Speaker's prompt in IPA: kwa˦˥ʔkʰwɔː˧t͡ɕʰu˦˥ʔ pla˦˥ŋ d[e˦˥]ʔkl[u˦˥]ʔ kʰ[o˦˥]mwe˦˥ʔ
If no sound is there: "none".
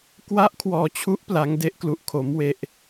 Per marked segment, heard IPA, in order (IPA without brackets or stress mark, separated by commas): e˦˥, u˦˥, o˦˥